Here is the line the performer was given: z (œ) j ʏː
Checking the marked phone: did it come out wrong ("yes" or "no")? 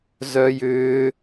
no